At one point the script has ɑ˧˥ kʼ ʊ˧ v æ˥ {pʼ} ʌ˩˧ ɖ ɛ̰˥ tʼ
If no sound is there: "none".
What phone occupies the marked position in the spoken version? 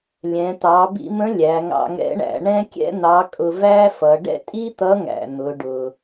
f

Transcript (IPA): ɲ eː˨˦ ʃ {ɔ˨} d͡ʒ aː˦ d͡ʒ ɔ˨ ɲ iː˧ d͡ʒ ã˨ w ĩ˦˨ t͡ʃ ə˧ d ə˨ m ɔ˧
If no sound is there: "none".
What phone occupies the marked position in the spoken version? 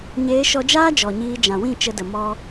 ɔ˧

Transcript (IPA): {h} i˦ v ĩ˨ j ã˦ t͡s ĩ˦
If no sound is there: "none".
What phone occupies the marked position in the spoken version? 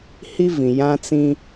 h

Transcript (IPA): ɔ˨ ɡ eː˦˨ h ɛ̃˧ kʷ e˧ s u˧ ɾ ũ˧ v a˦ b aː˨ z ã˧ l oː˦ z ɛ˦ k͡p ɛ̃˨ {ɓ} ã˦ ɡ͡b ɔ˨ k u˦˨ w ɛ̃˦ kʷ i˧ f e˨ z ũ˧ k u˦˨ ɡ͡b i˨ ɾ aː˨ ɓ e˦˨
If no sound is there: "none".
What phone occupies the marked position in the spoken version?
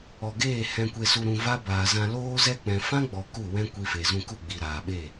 f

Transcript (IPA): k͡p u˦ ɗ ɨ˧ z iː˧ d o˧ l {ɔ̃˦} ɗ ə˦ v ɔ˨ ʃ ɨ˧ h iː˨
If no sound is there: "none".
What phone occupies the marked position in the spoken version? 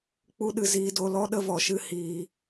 ɔ˦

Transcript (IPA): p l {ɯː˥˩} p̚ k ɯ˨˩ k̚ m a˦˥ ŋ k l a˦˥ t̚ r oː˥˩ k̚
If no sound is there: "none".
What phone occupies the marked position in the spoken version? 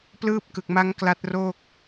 ɯː˥˩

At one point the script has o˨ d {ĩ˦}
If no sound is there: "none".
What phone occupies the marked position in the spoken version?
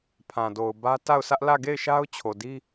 i˦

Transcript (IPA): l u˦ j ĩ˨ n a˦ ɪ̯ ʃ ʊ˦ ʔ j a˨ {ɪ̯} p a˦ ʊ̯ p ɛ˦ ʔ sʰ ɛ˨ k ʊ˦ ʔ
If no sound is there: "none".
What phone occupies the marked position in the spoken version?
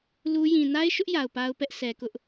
ʊ̯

